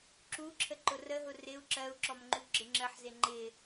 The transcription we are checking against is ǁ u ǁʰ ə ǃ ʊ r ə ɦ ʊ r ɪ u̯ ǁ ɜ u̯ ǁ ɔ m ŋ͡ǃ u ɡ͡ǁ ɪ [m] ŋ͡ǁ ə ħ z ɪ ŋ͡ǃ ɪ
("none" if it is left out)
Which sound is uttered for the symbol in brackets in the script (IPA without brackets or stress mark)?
none